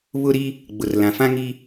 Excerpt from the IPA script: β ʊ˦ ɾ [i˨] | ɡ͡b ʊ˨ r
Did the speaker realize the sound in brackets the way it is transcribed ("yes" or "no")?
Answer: no